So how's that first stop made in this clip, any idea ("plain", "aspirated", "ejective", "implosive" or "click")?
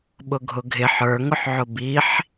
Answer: implosive